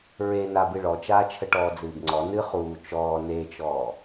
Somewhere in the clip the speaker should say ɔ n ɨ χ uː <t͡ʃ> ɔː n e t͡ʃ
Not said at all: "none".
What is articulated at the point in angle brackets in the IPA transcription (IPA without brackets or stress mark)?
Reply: t͡ʃ